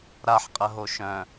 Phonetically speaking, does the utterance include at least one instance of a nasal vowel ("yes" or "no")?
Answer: yes